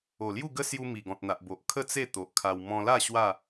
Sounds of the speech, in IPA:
o˨˩lju˥˧ ɡə˦sju˧ mi˨˩ɡɔ̃˨t̚n̪a˨ʔbo˨ʔ kʰə˥˧t͡se˥˧ t̪o˨ʔkʰa˧w mɔ̃˧la˥˧ ɕwa˥˧

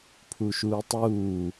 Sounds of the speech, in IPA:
pʰuʃuːtˤuː

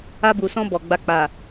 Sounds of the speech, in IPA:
a˧bu˨sɔ̃˧ bɔ˨ɡ͡ba˧k͡pa˨

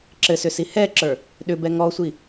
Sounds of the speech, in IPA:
ǁɘsʏsi hɛǁə˞ | ɗʏbɛ ŋɔsʷi

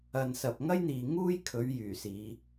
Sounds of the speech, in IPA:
ɐ˨nsɐ˨p̚ ŋɐ˥jn̪iː˨ŋuː˥j kʰɵ˨˥ɥ jyː˨˩siː˨˧

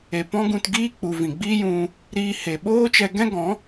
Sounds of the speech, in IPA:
e˨ pɔ̃˦ɡũ˧t ɡiː˦k͡pu˨ vĩ˨ɡ͡biː˦jũ˧ | ɾiː˧ he˨ɓoː˦ t͡ʃɛ˧ɡɛ̃˦ɡɔ̃˨˦

